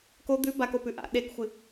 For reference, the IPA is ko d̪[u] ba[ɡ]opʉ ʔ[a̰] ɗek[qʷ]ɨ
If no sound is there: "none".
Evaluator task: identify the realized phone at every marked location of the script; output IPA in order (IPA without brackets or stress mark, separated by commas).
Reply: ʉ, k, a̰, xʷ